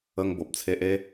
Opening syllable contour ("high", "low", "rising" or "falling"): high